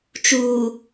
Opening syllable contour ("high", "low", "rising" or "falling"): low